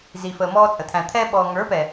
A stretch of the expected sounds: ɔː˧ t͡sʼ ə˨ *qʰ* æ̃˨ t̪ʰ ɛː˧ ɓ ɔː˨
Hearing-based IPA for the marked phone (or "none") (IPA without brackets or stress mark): t̪ʰ